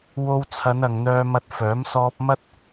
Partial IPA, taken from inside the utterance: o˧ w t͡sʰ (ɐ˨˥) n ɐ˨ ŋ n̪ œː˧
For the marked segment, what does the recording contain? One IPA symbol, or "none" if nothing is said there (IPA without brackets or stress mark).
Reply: ɐ˨˧